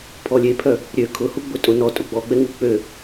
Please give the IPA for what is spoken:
pʰɔlʲepʰœ | ɾʲø kʰʊhuɡ͡bʊ tʼʊ nɔtʼʊ ɡ͡bɔɡ͡bɛŋu k͡pø

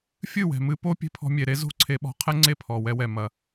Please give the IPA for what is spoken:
fʲɨ˦˨wɛ̤˨mɨ˧po˦ pʲe̤˧pʰɔ̤˧mʲe˨ɾe˦ zo̤˦˨ǀʰe˧ɓɔ̤˧qʰɛ˦ ŋ͡ǀe˦˨pʰɔ˨wɛ˧wɛ˨ mɐ˨

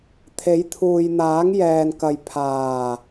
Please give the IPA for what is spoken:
t̪ʰe˨˥jt̪ʰuː˨j n̪aː˨˥ŋjɛː˨nkɐ˨j pʰaː˨˩

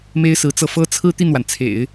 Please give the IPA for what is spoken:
me˥ɪ̯sɹ̩˧˥t͡sɤ˥˩ fɤ˥t͡sʰɹ̩˥ t̪i˥˩nwa˩nt͡sʰḛ˨˩˦ɪ̯

